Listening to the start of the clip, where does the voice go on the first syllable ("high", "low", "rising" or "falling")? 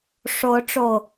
rising